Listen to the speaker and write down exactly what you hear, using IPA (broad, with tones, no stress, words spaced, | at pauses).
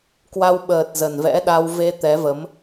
kwa˧wɓəː˨˩t̚ zə˨˩nvɛ̰˧˥ɗa˧w ve˧ t̪ɛ˨˦və˨˦m